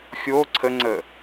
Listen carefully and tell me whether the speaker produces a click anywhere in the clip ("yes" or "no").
yes